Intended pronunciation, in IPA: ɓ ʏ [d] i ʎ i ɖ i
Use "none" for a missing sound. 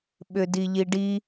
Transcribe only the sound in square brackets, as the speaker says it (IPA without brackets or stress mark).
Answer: d